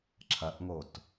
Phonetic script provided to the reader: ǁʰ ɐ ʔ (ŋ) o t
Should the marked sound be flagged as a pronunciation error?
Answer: no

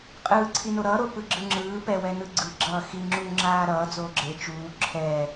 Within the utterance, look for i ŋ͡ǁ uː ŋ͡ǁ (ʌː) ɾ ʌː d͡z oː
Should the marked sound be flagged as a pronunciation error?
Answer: yes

